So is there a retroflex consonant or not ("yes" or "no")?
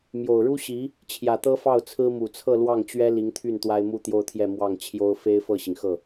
yes